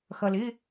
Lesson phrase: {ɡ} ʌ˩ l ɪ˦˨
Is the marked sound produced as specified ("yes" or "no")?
no